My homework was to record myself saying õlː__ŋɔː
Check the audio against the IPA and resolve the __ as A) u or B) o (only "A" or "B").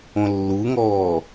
A